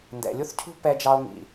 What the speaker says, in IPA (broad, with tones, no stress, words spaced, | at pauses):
ndɛ̰˨lʲu˦θcʰṳ˦ pɛ˦ d͡ʒɑ˦o̯ŋḭ˨